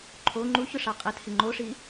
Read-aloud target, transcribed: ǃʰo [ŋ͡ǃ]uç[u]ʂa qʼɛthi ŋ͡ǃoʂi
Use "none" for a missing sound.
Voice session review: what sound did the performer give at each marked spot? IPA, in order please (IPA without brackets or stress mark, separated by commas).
ŋ͡ǃ, ʊ